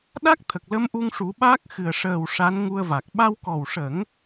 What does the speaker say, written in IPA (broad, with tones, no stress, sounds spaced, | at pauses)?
ɗ a˦˥ k̚ t̪ʰ ə˨˩ k̚ l ə˧ m ʔ u˧ ŋ ʂ u˨˩˦ ɓ aː˦˥ k̚ x ɨ˨˩ ə̯ ʂ əː˨˩ w ʂ a˧˥ n ŋ u˧ ə̯ v a˨˩ k̚ ɓ a˧ w k ɔ˨˩ w ʂ ə˨˩˦ ŋ